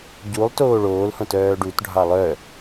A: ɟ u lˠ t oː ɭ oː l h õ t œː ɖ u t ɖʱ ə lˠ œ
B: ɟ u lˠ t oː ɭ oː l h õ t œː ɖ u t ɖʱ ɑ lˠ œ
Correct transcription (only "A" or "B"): B